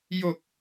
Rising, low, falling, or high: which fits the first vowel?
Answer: low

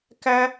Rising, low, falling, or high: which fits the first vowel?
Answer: high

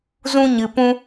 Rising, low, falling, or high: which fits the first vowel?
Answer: high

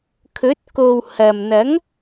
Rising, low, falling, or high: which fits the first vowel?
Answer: rising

